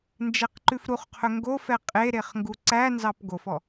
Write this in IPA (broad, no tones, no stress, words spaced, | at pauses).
nd͡ʒɛqǃʉfɾuχqʰɵ ŋɡofɛ qʼeɾeχ ŋɡuǀænzɑp ɡofɔ